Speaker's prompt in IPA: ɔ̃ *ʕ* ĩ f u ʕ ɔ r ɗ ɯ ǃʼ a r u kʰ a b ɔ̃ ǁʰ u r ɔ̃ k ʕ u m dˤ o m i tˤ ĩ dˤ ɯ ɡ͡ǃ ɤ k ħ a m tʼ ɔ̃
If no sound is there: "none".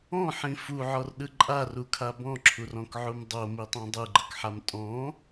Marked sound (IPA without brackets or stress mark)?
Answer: ħ